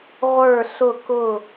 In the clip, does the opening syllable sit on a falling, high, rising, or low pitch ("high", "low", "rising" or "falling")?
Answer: falling